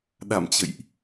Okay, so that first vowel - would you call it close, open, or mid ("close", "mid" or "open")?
open